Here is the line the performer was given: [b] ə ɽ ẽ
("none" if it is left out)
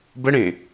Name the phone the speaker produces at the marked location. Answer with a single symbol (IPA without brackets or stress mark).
b